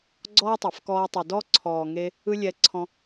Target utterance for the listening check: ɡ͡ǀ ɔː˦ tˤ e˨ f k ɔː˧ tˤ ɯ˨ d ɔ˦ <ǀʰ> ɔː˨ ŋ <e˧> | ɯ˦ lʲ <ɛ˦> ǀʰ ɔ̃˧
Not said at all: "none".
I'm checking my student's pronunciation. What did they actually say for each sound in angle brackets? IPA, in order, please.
ǀʰ, e˧, ɛ˧

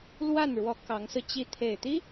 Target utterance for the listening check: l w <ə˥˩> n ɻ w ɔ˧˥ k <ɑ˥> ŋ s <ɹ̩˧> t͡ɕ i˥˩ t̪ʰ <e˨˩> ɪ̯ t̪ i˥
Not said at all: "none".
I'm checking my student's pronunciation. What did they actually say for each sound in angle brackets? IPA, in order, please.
a˥˩, ɑ˧˥, ɹ̩˧, e˨˩

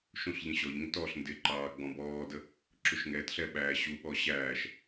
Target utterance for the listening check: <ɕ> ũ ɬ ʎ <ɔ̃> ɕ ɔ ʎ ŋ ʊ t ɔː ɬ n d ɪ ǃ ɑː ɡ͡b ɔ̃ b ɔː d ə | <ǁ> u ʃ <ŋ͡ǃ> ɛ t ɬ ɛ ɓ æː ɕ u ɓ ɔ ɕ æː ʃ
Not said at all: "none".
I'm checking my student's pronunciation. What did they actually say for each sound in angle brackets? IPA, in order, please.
ʃ, ə̃, ǁ, ŋ

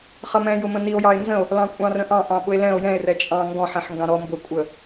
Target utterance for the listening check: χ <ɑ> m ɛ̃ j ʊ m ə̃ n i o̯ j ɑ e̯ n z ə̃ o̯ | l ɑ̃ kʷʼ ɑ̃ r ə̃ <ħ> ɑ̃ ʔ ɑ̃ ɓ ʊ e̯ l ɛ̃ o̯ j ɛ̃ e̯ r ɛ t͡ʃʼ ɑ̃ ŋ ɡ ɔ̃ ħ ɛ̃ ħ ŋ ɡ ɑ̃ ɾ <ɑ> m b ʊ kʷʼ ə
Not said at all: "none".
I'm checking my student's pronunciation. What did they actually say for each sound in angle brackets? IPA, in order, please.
ʌ, ʔ, ɔ

